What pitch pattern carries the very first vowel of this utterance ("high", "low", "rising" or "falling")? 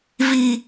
low